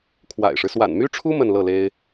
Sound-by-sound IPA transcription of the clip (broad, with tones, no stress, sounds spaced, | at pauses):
kʰ w a̰˨˩ ɪ̯ ʂ ɻ̩˦ s w a̰˨˩ n m y˥ ʈ͡ʂʰ u˥ m ə˥˧ n l ɤ˥˩ l e˥ ɪ̯